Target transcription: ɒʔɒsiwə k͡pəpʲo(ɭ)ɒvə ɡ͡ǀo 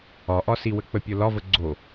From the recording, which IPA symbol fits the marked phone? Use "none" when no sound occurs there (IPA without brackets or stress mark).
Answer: l